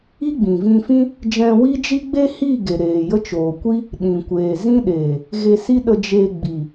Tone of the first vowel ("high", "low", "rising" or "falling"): high